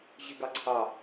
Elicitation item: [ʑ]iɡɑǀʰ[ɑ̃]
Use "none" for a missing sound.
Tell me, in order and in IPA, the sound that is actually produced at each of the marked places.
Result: ʑ, ɑ

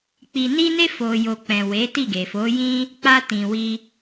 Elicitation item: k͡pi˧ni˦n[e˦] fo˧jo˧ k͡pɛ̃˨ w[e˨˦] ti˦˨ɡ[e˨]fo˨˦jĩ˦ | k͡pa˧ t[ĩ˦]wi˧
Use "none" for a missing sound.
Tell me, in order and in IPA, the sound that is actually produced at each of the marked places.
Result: e˦, e˨˦, e˨, ĩ˨

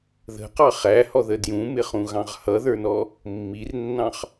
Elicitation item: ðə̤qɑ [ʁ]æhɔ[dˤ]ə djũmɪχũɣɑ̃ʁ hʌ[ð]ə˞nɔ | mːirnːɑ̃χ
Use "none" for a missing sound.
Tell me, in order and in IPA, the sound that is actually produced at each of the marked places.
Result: χ, ð, ð

